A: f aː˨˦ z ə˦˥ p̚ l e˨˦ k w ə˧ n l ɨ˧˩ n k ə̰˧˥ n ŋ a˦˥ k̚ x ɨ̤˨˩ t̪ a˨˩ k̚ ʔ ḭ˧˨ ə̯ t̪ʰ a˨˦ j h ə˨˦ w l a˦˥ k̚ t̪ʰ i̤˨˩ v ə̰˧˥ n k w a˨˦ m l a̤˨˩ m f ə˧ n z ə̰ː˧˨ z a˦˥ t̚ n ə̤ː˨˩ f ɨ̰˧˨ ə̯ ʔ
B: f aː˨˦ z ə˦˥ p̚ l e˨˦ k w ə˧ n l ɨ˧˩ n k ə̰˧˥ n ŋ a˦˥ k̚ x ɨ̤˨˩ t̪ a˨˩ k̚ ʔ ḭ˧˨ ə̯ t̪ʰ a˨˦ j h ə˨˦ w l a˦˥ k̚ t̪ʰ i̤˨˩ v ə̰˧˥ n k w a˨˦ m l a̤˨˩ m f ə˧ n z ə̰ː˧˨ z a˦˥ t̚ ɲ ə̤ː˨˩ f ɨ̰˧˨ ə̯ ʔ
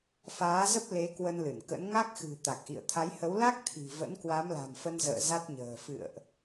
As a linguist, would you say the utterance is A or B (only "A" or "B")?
B